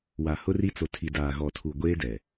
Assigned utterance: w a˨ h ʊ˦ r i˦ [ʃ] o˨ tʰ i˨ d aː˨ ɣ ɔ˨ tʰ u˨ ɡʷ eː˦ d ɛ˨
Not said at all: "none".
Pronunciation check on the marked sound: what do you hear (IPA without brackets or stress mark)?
t͡s